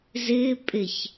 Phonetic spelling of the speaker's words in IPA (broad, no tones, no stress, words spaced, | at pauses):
zɪː pʼɪç